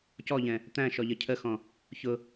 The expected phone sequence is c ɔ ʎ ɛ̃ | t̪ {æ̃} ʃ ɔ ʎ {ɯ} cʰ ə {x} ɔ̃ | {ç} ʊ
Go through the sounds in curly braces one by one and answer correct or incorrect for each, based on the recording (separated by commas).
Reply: correct, incorrect, correct, correct